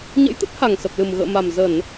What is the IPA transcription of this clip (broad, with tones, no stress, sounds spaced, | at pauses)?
ɲ ə̰˧˥ j t̪ ə˦˥ t̚ h a˨˩ ŋ s ə˨˩ p̚ l ɨ˨˩ m ɣ ə̰ː˧˨ m a˨˩ m z ə˧˩˨ n